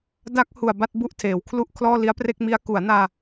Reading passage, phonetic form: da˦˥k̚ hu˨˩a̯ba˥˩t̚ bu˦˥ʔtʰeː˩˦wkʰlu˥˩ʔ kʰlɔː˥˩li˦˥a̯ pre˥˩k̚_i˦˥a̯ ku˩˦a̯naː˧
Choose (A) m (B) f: A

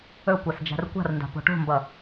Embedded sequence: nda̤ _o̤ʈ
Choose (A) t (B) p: B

